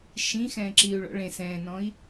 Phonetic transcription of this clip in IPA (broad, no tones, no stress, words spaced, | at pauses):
ʃĩ xɛ̃ːǁiu̯ɭɔ̰ ɭẽ sɛ̃ːnɔ̃i̯